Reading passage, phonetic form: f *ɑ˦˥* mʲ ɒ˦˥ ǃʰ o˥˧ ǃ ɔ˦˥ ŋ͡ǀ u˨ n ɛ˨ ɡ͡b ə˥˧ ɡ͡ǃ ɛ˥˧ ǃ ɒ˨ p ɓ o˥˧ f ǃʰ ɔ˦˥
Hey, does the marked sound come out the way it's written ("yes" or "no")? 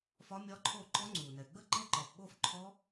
no